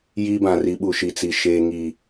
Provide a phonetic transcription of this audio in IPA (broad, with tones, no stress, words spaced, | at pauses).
jiː˦bã˨ri˨˦ɓu˨ ʃi˨t͡si˨ ʃeː˨ŋi˨